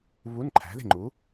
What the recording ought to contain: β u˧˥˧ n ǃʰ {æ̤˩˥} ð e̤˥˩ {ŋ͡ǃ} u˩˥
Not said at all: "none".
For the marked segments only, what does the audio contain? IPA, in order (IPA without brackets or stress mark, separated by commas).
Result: æ̤˩˥, ŋ͡ǃ